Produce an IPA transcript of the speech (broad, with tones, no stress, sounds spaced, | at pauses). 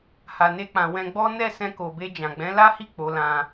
h a˨ n e˧ k͡p ã˨ w ɛ̃˧ ɡ͡b ɔ˦ n ɛ˦˨ s ɛ̃˧ k o˨ b e˧ d͡ʒ ã˨ ɡ͡b ɛ̃˨˦ l a˦ h i˦˨ k͡p o˨˦ l ã˧